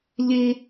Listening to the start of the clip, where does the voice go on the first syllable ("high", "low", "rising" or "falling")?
high